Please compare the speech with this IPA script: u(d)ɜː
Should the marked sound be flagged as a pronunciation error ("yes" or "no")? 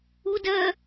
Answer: no